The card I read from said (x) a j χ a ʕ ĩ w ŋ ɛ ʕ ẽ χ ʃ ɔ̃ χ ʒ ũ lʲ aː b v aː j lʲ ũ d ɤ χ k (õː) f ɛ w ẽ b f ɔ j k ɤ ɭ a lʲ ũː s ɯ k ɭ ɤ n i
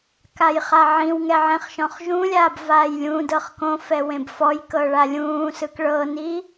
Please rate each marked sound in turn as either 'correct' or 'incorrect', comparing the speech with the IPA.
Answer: incorrect, incorrect

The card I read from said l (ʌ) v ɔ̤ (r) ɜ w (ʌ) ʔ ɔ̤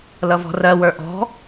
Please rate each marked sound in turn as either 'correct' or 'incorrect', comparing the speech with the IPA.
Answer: correct, correct, incorrect

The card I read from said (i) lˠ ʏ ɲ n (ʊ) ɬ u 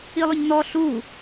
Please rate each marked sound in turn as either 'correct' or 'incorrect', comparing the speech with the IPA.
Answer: correct, incorrect

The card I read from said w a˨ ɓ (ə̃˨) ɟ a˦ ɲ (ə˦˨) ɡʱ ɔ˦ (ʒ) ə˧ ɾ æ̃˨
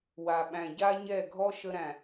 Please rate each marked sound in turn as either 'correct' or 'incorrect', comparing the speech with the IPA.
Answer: incorrect, incorrect, incorrect

